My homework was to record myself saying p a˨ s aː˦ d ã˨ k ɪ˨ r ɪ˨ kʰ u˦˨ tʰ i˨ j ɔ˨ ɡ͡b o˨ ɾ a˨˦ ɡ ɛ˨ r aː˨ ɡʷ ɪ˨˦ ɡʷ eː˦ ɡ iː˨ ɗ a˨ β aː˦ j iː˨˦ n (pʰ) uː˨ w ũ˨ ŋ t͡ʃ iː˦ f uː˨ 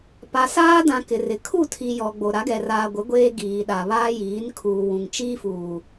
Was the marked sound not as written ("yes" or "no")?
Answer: yes